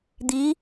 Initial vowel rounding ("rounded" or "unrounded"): unrounded